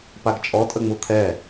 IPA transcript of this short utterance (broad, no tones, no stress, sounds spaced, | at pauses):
p a ɡ t͡ʃʼ ɔ tʼ ə ŋ͡m u t̪ʰ ɛ